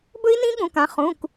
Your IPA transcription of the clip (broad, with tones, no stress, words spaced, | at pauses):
bɵ˦˥i̯nĩ˦˥ɠũ˩˧˩kã˩˧˩ χũ˩˧˩k